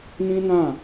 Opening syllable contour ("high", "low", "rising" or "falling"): high